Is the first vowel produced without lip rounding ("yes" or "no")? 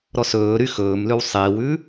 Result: no